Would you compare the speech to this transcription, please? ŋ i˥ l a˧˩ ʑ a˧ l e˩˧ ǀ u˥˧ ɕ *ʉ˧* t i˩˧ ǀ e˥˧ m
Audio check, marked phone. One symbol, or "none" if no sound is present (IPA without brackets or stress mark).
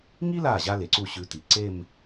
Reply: ʉ˧